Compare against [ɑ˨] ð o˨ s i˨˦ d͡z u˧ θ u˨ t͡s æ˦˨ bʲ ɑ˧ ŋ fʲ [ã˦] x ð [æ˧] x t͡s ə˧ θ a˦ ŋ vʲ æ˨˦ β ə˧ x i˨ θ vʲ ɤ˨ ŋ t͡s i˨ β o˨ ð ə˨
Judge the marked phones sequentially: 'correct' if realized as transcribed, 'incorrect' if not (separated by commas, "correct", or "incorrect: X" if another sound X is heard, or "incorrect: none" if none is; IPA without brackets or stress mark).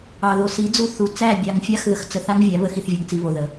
correct, incorrect: a˦, incorrect: ə˧